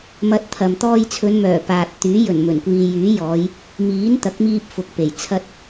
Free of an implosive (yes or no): yes